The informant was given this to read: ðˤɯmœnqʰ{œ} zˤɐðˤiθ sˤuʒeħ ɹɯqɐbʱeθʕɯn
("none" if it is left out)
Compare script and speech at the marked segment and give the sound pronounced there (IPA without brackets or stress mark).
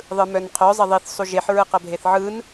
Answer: œ